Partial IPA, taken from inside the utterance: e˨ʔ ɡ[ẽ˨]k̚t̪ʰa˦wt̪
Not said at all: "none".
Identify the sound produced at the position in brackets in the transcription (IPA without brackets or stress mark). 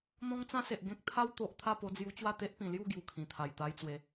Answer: ẽ˦